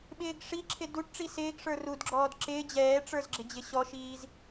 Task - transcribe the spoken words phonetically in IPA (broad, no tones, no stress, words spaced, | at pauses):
ɓɪːɡʂiǁʰɪ duʈʈ͡ʂi sɪːɡʂə˞ rudɡ͡ǁɔːd ǁɪː d͡ʑɛːʈ͡ʂə˞z ɡ͡ǁɪd͡ʑɪɕɔʃiːz